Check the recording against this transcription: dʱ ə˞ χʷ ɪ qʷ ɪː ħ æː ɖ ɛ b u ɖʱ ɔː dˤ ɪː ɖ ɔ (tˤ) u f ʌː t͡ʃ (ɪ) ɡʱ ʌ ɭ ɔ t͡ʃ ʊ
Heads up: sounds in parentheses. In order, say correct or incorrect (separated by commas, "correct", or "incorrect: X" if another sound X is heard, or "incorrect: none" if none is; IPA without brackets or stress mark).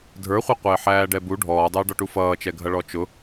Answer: incorrect: ʈ, incorrect: ɛ